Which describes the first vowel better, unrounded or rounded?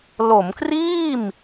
rounded